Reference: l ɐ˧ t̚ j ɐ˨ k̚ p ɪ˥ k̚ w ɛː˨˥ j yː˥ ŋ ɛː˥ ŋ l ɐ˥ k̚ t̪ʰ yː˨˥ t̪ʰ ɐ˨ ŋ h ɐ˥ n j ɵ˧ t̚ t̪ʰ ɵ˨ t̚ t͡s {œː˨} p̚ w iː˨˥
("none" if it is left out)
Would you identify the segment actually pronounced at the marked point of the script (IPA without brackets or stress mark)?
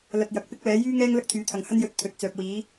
œː˨